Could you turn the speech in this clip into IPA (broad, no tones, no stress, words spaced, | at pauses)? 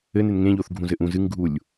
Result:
ɘnen ŋẽʎoθɡʱũ zɘʔũ zɨŋɡʱulʲ